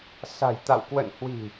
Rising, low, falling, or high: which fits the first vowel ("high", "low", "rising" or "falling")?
low